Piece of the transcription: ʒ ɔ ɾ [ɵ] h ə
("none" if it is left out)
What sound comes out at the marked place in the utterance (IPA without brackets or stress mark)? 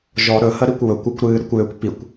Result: ɵ